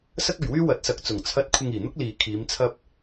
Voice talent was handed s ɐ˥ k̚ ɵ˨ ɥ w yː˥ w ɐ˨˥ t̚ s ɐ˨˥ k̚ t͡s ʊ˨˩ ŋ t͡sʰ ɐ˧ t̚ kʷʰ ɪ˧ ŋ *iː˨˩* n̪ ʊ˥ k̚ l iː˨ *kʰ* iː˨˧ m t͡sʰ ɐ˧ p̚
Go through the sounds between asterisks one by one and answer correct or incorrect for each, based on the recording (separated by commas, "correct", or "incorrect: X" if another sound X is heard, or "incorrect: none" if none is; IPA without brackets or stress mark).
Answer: correct, correct